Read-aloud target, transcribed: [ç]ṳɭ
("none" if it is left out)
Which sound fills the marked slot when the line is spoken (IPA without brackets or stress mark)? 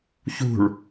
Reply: ç